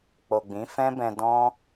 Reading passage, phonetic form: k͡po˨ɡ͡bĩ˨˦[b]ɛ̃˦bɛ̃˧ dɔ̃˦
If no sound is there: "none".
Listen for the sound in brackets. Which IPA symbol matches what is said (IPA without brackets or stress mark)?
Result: f